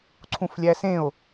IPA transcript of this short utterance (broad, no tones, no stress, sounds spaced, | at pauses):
ǀʰ ũ f lʲ æ s ẽ o̯